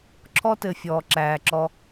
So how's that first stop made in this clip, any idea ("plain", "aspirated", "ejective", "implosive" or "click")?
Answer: click